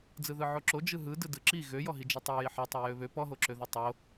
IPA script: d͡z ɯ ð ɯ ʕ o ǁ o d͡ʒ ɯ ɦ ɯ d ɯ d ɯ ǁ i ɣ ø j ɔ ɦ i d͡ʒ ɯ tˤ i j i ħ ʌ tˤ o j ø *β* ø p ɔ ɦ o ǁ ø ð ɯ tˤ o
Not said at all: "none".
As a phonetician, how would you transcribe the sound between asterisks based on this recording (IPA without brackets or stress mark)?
β